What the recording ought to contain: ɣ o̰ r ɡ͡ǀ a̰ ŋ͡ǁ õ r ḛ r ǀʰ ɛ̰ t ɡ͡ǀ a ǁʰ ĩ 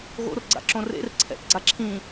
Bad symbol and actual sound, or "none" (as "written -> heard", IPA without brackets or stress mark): ŋ͡ǁ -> ǁ